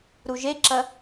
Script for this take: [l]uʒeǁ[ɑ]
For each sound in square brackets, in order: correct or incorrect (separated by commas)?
incorrect, incorrect